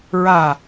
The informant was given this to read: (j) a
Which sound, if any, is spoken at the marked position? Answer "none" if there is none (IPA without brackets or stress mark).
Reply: ɹ